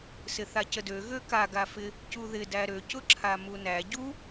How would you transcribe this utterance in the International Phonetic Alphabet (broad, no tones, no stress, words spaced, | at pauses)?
sɪθacədø ɣøka ɡafɪ | cuðɪ dæɾø cʊǁʰamunæ ɟu